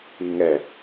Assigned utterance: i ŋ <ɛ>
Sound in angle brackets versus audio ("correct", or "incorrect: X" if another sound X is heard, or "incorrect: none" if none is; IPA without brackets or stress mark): correct